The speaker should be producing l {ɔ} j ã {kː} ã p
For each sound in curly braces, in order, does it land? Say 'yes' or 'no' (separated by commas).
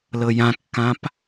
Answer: no, yes